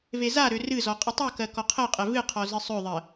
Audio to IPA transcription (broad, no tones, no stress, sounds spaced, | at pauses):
v e z a ɾ ø r ɨ z ɔ qʼ i tˤ o k ɜ k ɔ qʰ ɜ qʼ ɛ v ɨ qʰ ɔ z ɨ sˤ ø ðˤ ɜ